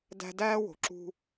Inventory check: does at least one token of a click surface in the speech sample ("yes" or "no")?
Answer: yes